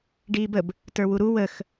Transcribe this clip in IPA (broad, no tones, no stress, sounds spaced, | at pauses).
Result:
ɖ iː b ə b | t ə˞ w u ɾ u w ə x